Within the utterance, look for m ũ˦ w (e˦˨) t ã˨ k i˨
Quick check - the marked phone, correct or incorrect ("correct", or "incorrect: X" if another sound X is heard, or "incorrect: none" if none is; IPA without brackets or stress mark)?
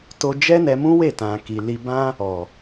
correct